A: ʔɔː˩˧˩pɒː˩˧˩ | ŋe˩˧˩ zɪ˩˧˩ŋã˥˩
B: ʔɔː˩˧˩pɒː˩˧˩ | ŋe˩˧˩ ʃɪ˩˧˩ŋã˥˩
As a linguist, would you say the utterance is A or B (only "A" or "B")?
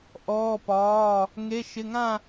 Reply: B